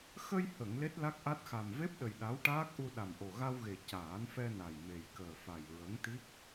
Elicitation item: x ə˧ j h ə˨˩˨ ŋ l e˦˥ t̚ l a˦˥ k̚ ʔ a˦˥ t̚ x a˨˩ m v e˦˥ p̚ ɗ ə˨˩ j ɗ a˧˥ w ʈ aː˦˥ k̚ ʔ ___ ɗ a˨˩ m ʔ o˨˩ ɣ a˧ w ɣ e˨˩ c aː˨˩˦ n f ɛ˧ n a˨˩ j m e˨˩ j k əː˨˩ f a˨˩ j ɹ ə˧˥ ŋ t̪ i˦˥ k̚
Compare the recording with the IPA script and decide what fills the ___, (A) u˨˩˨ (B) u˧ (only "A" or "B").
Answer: B